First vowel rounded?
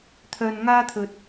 yes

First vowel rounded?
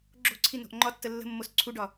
yes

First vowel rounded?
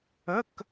no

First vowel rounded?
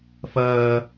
no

